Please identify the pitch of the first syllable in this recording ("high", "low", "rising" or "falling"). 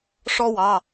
high